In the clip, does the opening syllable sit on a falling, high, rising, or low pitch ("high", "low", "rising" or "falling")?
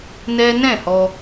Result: high